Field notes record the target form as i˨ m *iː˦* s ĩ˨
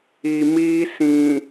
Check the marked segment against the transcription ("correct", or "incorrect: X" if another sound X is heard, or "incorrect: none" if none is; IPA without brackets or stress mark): correct